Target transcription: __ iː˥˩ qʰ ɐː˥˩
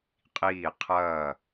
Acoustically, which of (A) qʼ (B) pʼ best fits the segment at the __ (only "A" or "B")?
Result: A